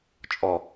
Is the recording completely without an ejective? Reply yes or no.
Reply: no